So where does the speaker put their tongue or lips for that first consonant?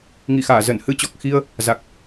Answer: velum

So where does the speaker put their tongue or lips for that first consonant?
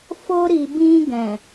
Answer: lips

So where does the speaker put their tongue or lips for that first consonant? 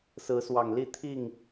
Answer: tongue tip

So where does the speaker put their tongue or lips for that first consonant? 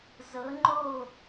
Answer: tongue tip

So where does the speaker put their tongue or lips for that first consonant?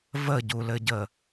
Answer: lips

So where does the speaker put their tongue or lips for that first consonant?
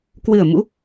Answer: velum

